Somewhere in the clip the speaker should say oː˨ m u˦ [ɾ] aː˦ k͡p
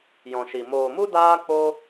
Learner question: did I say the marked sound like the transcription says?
no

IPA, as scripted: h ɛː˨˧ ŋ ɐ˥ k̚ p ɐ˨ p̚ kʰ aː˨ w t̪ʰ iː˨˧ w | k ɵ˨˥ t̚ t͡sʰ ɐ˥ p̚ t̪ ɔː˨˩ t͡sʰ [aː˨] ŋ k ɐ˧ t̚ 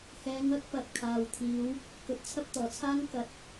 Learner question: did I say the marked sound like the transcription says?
no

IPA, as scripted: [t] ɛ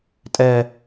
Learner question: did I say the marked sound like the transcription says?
no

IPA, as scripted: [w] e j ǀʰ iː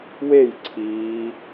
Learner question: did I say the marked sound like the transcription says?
yes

